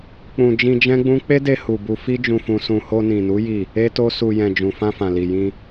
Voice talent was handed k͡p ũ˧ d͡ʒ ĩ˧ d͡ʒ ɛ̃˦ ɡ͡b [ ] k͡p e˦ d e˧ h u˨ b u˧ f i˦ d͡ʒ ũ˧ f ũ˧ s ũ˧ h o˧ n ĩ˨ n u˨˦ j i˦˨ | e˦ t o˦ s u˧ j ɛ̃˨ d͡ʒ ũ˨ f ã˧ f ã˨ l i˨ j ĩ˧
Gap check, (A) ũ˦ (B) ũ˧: A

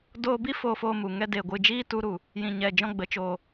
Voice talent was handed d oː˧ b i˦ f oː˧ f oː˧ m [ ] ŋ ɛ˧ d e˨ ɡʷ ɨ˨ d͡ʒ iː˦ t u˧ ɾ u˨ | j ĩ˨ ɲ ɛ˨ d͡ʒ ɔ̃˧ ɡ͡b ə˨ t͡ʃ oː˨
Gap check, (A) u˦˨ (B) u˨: B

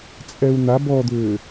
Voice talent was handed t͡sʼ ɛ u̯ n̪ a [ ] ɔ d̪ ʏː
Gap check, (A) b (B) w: A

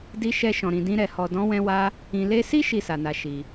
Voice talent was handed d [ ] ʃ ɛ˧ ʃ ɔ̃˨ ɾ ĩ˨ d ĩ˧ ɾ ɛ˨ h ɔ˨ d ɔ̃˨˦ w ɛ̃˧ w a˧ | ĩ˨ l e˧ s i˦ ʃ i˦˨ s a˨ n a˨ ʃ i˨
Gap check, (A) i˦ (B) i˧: B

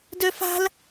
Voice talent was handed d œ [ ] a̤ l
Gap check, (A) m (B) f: B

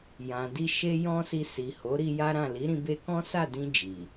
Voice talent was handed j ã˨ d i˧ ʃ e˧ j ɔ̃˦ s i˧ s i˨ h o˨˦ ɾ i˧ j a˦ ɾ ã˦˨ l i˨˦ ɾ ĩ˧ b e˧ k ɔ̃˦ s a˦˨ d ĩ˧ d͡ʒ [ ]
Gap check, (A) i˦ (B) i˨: B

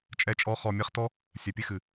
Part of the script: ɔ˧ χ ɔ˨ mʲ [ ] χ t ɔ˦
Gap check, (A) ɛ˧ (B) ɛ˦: A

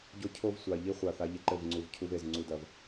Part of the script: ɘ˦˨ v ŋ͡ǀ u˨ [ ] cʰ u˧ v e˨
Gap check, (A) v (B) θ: A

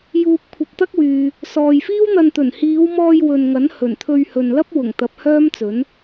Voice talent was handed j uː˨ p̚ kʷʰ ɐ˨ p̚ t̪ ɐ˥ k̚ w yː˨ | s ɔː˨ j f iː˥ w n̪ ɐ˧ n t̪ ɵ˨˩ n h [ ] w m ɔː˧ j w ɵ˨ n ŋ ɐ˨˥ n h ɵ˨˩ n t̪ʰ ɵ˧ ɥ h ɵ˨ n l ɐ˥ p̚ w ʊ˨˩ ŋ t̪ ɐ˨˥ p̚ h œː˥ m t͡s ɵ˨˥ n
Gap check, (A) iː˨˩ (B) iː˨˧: B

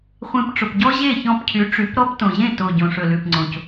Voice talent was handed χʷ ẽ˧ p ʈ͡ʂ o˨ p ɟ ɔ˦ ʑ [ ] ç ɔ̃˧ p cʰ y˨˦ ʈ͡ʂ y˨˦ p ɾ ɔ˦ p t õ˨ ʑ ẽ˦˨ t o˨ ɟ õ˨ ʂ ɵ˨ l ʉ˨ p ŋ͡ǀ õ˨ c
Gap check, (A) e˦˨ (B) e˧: A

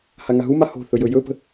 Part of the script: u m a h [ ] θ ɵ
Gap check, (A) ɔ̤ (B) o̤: B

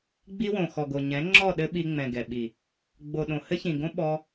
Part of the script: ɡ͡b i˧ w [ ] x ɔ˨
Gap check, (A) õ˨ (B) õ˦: A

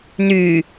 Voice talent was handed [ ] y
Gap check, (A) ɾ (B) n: B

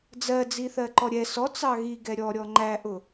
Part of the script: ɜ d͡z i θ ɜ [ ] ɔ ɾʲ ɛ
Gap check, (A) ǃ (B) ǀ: A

